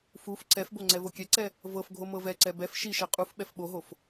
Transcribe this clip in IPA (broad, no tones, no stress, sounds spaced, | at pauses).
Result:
f u f ǀ ɛ f b o ŋ͡ǀ ɛ v o kʲ ɛ ǀ ɛ | v ɤ f ɡʱ o m ɤ v ɛ ǀ ɛ b ɛ f ʃ i ʃ ɛ qʼ u f ɓ ɛ f ɓ o ɦ o f